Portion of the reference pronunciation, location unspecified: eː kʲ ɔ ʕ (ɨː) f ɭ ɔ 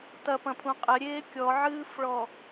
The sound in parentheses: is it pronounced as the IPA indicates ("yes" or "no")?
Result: yes